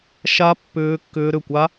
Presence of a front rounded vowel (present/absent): present